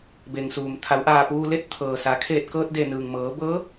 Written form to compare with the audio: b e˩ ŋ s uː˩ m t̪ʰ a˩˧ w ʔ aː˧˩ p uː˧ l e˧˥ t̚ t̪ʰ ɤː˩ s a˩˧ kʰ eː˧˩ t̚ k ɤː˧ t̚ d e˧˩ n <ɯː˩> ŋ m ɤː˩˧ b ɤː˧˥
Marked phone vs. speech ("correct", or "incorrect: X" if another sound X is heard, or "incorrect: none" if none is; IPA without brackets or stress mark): correct